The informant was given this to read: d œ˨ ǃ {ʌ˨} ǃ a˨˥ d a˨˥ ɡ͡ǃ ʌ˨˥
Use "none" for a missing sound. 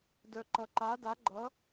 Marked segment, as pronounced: ʌ˨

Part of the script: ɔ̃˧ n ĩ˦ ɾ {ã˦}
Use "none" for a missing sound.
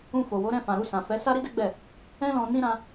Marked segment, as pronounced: ã˦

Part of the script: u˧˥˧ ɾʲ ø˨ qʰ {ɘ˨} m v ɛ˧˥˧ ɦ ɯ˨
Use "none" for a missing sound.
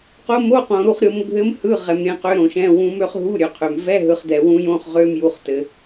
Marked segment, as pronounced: ø˨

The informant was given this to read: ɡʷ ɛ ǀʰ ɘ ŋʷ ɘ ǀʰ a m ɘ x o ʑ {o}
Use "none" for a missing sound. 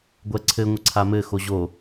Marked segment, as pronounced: o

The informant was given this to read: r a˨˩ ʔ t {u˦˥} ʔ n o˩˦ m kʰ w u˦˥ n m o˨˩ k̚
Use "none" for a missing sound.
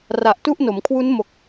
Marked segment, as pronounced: u˥˩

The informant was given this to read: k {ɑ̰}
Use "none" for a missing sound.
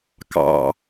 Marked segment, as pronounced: ɑ̰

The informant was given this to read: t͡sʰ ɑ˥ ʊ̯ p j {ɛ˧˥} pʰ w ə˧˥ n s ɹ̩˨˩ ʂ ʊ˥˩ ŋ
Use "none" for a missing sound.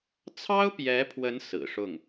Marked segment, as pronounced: ɛ˧˥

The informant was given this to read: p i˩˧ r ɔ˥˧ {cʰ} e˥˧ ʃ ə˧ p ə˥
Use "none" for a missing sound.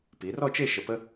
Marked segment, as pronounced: t͡ʃ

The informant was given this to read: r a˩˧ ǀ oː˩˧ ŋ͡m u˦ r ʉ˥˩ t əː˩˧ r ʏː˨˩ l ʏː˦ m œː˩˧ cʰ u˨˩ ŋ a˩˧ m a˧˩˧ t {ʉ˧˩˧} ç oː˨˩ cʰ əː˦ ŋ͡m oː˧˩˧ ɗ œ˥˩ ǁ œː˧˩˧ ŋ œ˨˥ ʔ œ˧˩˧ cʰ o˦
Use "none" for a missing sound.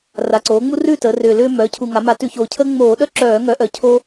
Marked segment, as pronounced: ʉ˧˩˧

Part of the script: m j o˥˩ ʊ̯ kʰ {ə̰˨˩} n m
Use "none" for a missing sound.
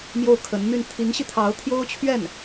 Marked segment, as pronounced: ə˧˥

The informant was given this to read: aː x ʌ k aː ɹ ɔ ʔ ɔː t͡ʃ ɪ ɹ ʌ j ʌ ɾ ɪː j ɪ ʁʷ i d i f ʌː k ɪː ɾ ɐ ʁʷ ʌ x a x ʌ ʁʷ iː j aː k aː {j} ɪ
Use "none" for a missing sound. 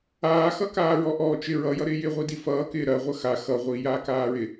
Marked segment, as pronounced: ɹ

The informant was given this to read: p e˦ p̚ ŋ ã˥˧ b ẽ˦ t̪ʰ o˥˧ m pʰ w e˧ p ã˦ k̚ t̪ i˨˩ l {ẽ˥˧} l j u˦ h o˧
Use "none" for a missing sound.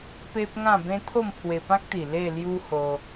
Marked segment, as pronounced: e˥˧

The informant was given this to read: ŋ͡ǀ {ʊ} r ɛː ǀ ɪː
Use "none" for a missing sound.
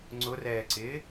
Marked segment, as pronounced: ʊ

